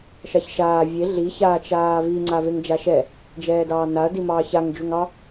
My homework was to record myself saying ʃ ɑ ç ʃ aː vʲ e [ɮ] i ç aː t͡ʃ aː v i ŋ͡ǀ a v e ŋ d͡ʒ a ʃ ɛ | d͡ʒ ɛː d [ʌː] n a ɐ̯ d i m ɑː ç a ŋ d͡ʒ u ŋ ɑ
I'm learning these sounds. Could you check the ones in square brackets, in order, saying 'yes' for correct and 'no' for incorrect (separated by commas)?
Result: yes, no